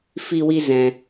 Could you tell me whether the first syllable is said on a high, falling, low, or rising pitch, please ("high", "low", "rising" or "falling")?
high